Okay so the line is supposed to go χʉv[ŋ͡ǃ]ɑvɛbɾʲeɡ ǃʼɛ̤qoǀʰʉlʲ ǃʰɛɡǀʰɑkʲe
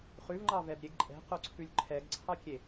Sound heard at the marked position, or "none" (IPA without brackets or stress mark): ŋ͡ǃ